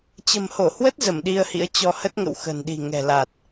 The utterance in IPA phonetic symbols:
t͡ɕə̤˨˩mho˧˩hwə˦˥t̚ zə˧˩mɗi˧ə̯hḭ˧˥ə̯ t͡ɕɔ˧hə˦˥t̚ŋə̰˧˨w xə̤˨˩nɗi̤˨˩ŋɛ̤˨˩la˨˩t̚

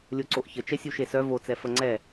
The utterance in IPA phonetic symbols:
lʲoǀoʔçət͡ʃɛ sʲuʃesœ vot͡sɛ fəŋ͡ǀɛ

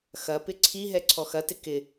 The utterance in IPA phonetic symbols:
xɐpɪ ǀʰiɦɛ ǀʰɔxɐtɪ kɪ

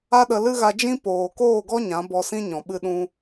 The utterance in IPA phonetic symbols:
a˦ɗə˧lɨ˦ɣa˧ d͡ʒĩ˦ poː˨koː˦˨ɡɔ˦ ɲã˨˦bɔ˧sĩ˦ ɲɔ̃˨ɓɨ˧ɗũ˧

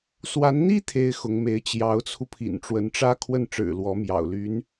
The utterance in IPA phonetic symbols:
swa˧˥nn̪i˥ t̪ʰe˥ɪ̯xʊ˧˥ŋme˧˥ɪ̯ t͡ɕjɑ˧˥ʊ̯t͡sʰu˧ pʰḭ˨˩nʈ͡ʂwə˧˥nʈ͡ʂä˥ kʰwə˥˩nʈ͡ʂɻ̩˨˩ lwɔ˧˥mjɑ̰˨˩ʊ̯ ly˧˥n

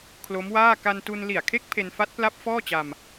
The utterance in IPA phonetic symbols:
kʰlo˦˥mwaː˥˩ ka˧ntu˧n li˨˩a̯kʰe˦˥k̚ pʰe˧nfa˦˥t̚pla˦˥p̚ fɔː˥˩t͡ɕa˧m

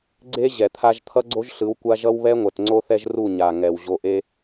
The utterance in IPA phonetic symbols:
ɡ͡ǀe˦ ʑɛ˨t̪ʰa˧ʒ t̪ʰʌ˦ɡ͡ǀo˦ʒɬɯ˨˦w kʷa˦ ʒʌ˦wβɛ˦ŋʷɛ˨t ŋ͡ǀo˦θɛ˦ʒru˦˨ ɲa˨ŋɛ˨w ʑo˨ʔe˧

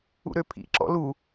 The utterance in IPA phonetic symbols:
ṵɾøpʰḭ ǁɔ̰lu

